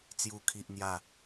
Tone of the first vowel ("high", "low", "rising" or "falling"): high